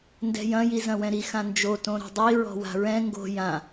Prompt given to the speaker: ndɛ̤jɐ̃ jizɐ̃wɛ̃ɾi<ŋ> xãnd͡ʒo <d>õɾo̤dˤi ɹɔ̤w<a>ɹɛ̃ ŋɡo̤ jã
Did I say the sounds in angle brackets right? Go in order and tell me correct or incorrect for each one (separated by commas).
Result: incorrect, incorrect, incorrect